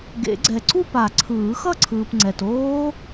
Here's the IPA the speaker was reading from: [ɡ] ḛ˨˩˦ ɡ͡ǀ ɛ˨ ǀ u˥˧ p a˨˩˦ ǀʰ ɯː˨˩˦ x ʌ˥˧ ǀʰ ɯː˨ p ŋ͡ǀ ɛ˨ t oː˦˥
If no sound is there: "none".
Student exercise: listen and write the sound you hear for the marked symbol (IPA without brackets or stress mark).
ɡ